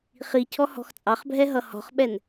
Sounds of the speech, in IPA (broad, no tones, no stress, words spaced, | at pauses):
χicʰɔ hɔ̤xt͡sʼɑχbʱɛ ɦʌhɔ̤χɓɛn